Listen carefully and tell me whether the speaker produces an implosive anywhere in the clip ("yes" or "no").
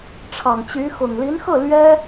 no